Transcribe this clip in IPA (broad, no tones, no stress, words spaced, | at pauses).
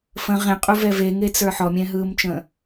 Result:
fə̃ ʁẽqʼuvɛ veŋet͡sə˞ ħɔmʲɛ̃ɦɯːmt͡ʃə̃ː